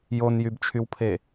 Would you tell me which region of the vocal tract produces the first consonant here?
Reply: palate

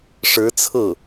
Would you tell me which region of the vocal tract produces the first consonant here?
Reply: retroflex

